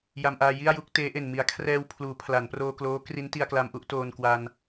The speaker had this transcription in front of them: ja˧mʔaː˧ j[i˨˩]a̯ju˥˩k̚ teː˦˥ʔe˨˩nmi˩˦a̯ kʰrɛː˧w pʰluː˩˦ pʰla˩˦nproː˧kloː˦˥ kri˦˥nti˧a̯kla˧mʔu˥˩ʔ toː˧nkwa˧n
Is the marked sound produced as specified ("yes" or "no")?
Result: no